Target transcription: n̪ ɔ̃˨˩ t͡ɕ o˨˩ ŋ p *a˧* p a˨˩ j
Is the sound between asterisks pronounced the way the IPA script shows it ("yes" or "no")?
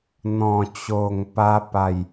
yes